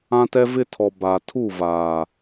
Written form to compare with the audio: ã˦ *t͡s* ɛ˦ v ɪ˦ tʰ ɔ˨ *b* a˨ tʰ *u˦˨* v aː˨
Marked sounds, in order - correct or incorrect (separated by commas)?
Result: incorrect, correct, correct